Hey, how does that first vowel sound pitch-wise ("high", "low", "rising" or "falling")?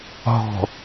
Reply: low